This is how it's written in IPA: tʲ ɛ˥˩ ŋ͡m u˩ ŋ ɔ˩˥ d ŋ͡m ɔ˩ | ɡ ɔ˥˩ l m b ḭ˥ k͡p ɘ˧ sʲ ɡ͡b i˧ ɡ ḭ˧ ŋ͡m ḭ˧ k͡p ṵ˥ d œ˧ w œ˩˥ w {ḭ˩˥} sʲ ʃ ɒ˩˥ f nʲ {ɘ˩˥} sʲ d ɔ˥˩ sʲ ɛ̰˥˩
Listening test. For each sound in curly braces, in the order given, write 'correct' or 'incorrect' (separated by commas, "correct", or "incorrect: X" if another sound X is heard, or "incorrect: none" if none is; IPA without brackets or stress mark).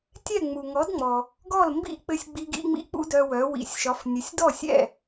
correct, correct